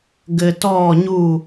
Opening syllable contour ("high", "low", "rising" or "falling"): low